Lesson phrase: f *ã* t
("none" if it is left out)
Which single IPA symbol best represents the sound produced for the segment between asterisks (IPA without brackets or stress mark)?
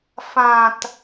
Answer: ã